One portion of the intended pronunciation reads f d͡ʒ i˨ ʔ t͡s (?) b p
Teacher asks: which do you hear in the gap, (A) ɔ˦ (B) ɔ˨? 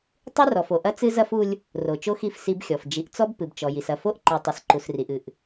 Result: A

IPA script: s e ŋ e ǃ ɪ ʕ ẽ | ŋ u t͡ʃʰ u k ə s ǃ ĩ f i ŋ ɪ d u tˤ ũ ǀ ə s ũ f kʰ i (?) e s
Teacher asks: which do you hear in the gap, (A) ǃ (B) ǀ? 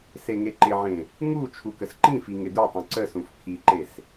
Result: A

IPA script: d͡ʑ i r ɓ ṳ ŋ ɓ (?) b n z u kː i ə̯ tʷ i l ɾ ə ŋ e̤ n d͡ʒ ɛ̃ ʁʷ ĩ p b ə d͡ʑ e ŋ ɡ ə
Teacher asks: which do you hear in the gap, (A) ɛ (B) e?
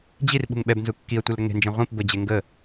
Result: A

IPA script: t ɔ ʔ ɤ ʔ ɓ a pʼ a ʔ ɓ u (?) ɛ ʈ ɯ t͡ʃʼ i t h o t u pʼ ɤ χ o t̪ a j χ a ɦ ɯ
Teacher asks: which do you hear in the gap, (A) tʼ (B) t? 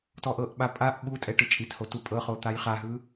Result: A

